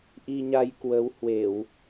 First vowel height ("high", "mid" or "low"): high